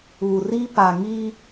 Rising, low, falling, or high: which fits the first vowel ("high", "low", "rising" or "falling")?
low